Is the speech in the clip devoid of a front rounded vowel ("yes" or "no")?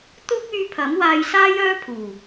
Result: no